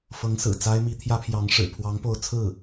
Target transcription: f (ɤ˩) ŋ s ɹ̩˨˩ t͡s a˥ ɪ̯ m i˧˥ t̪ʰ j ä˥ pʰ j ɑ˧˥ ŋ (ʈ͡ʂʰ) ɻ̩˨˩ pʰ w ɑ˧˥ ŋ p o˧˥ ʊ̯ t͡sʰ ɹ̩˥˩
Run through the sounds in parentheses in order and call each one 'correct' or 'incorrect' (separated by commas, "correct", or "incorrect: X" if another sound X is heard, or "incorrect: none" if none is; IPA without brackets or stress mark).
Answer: incorrect: ɤ˧˥, incorrect: ʂ